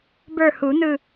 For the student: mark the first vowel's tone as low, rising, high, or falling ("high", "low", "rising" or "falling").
falling